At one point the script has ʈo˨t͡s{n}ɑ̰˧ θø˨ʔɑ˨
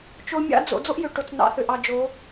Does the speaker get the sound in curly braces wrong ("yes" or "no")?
no